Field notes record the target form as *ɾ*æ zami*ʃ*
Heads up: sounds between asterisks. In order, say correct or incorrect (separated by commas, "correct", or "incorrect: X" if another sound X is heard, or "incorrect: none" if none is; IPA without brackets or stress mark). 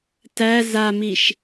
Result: incorrect: t, correct